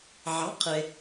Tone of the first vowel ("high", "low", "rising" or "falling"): rising